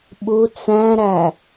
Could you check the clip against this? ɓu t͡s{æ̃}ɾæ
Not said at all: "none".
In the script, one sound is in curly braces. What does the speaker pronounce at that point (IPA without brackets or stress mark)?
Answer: æ̃